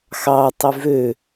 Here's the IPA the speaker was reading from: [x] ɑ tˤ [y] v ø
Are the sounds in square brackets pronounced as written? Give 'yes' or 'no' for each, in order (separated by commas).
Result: yes, yes